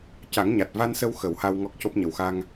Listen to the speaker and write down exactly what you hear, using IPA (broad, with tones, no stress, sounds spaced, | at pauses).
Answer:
c a˨˩˦ ŋ ɲ a˨˩ t̚ v a˧ n s ə˧ w x ə˨˩˦ w h a˧ w ŋ ɔ˦˥ k̚ c o˦˥ p̚ ɲ ə˨˩ w x a˧ ŋ